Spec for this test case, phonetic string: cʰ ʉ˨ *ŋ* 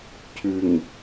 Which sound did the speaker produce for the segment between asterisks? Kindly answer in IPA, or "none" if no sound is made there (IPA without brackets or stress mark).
ŋ